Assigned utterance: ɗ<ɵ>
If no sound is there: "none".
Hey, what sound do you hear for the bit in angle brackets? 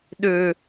ɵ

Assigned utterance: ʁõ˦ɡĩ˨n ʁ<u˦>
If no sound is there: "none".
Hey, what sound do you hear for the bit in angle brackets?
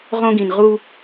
u˦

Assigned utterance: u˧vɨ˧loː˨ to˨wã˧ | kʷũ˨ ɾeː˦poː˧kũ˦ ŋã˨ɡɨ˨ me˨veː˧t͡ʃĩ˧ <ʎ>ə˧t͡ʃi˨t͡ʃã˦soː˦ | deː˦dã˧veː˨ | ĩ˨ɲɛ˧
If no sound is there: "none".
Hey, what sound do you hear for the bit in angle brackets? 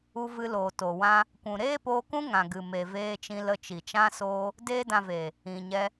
l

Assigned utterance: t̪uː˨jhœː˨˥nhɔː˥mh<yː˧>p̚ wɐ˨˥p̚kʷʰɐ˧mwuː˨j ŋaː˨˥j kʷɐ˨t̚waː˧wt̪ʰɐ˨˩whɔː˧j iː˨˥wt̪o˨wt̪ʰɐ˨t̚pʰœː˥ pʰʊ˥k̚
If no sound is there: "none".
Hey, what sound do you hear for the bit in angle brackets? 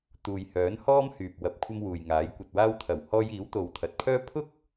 yː˨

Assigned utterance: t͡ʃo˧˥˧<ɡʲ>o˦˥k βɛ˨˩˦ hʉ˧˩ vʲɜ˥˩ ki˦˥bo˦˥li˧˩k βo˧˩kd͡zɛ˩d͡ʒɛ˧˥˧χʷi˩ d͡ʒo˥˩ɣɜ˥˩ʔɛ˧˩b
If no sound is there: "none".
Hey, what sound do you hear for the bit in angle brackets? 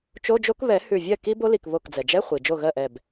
d͡ʒ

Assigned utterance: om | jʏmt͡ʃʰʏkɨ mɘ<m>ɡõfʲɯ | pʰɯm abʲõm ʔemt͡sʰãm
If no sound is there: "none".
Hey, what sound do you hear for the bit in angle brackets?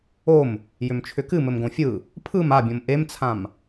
m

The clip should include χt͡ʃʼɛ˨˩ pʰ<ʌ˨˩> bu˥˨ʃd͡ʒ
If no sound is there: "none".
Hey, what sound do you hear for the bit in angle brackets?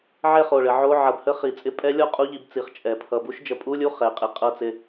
ʌ˨˩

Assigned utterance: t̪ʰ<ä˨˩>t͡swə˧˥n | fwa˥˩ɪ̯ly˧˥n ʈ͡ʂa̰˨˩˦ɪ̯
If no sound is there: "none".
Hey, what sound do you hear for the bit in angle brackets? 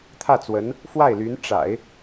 ä˥˩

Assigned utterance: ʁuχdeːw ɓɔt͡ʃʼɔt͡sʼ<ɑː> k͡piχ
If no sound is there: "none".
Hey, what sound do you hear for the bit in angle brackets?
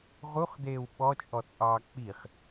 ɑː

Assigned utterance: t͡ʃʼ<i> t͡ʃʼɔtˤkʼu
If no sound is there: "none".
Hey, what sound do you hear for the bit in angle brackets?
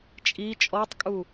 i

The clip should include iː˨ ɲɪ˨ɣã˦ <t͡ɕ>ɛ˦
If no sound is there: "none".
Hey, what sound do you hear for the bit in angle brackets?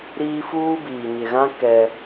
k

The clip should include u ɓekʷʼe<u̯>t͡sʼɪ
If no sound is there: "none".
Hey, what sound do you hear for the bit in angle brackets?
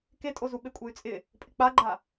y̯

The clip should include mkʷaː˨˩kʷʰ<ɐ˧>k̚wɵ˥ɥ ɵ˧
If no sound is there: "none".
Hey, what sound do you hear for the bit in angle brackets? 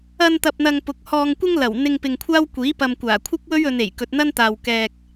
ɐ˥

